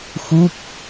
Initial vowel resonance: oral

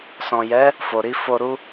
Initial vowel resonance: nasal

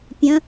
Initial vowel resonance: nasal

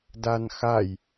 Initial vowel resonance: oral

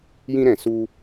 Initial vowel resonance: nasal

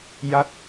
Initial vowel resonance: oral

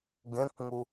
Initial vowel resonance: nasal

